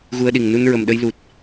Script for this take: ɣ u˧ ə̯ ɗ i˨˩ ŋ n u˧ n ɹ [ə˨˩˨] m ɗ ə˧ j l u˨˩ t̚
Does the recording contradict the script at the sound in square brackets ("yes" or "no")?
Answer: yes